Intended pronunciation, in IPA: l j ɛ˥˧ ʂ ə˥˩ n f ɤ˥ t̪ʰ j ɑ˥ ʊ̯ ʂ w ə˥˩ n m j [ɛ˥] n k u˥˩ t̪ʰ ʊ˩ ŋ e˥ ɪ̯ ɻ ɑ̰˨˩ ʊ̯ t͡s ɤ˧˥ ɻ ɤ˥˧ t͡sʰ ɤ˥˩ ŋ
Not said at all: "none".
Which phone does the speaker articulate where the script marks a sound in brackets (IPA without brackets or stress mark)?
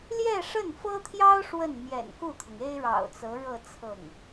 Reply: ɛ̰˨˩